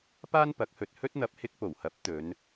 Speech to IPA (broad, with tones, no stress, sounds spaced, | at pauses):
p aː˥ n p ɐ˨˥ k̚ h ɵ˨ t̚ h ɵ˥ t̚ n̪ ɐ˧ p̚ h ɪ˥ k̚ p o˨˩ w h ɐ˨˥ p̚ t̪ ɵ˨˧ n